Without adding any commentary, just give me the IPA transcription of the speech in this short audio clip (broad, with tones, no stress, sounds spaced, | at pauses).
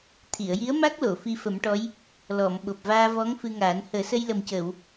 t̪ʰ i˨˩˨ ə̯ j i˧˥ ə̯ m a˦˥ k̚ l o˨˩˨ f i˧ f ə˨˩˦ m ʈ ɔ˧˥ j | l ɔ˨˩˨ m ɓ o˨˩ p̚ v aː˧ v ɔ˧˥ ŋ f ɨ˧ ŋ aː˨˩˦ n h əː˨˩˦ s ə˧ j l ə˨˩ m c əː˨˩˨ w